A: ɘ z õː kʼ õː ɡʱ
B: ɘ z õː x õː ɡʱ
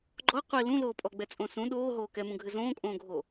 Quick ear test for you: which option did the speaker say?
A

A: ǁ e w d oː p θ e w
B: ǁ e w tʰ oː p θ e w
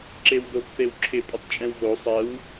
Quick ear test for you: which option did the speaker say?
A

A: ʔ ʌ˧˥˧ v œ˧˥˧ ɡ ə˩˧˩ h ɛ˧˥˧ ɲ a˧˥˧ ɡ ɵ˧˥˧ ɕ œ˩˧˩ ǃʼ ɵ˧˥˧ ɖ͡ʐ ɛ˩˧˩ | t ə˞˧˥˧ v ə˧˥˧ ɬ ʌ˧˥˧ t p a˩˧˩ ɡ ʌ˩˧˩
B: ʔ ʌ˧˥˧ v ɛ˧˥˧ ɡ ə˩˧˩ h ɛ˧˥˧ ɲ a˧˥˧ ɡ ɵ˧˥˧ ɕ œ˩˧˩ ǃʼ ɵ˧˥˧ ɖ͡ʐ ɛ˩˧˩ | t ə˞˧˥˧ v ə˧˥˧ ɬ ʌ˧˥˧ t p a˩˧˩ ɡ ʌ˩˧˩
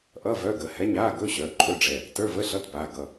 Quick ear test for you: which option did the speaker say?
A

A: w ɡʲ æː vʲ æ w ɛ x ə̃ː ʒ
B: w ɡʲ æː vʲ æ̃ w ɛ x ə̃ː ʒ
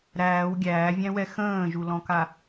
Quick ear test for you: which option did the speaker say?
B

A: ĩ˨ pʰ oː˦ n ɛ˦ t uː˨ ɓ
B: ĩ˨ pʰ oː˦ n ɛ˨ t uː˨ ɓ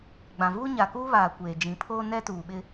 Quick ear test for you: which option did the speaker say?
A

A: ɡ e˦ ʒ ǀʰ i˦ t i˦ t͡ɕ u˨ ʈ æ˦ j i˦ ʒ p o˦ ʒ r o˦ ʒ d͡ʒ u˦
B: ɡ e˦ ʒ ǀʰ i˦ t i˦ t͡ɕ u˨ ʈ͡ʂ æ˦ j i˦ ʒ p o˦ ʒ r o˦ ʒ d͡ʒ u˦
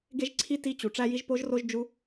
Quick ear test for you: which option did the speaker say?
B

